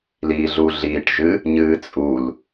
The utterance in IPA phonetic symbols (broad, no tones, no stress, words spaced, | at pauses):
liːɮuɮiːʈʒɨ | ɲɨːt͡sʼul